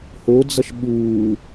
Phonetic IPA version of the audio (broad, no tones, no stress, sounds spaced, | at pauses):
h o d͡z ʌ ʃ ɓ uː